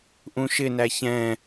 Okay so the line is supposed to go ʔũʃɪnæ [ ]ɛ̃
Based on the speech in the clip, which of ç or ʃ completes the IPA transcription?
ç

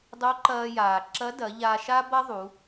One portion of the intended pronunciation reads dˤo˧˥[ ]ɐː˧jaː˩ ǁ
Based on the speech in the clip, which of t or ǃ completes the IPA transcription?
ǃ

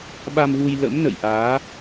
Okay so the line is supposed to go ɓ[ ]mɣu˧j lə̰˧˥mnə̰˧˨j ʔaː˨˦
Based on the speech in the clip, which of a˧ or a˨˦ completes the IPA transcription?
a˧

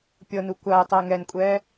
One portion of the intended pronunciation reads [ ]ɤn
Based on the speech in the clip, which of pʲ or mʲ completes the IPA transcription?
pʲ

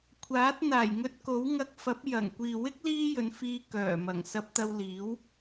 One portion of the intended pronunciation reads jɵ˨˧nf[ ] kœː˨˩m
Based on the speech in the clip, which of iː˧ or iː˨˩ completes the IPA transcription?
iː˧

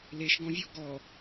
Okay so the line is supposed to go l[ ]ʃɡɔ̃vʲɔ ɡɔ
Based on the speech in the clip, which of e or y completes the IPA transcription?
e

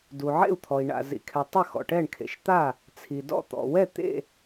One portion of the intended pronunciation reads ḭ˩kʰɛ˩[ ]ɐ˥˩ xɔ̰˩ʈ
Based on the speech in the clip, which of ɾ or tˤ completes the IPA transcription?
tˤ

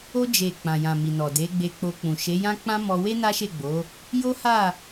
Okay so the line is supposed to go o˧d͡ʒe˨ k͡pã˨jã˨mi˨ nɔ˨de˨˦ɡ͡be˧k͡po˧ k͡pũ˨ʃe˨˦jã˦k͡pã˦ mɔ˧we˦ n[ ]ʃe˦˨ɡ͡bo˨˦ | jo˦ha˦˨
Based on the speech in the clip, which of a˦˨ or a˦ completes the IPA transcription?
a˦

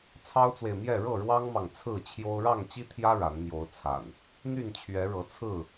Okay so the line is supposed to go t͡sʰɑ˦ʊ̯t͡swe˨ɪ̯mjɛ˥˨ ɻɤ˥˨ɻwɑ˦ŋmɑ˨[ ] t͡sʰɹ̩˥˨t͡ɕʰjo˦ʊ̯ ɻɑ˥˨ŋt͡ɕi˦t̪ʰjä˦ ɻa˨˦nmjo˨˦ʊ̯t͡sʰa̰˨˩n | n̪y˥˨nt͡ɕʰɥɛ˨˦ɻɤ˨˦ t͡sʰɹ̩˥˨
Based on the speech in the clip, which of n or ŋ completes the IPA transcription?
ŋ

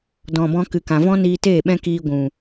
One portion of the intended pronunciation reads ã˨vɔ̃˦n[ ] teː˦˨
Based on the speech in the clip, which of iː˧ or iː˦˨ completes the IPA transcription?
iː˧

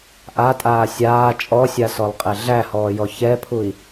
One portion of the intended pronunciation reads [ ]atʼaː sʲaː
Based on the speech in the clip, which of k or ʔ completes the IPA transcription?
ʔ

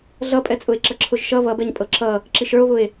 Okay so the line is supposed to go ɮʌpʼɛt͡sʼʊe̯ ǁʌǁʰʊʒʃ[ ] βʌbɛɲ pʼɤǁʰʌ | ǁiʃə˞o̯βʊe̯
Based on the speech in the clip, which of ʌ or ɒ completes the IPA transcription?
ʌ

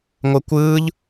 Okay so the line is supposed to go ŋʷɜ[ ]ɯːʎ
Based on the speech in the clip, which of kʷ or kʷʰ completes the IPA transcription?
kʷ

